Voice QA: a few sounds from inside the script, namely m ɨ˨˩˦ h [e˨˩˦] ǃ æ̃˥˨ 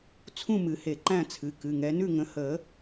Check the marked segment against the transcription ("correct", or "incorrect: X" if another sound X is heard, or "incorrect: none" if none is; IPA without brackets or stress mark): correct